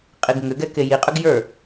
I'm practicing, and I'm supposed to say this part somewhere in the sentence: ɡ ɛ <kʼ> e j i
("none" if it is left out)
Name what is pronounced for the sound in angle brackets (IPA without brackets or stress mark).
k